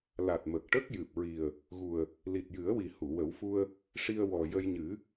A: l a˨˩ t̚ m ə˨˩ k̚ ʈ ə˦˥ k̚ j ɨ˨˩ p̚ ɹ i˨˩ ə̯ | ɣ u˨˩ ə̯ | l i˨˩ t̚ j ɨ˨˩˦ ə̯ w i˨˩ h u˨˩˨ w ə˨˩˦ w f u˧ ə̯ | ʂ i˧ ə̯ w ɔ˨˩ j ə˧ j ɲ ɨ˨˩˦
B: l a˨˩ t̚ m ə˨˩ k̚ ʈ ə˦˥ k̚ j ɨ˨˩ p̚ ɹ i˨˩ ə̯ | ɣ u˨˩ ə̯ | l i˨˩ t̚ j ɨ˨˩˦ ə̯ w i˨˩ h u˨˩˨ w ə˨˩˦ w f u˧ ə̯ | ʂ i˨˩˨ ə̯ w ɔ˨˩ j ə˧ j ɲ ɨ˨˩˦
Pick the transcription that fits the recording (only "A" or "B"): A